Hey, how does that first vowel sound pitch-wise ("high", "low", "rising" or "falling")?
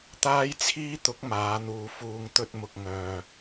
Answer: high